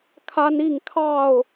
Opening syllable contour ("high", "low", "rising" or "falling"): high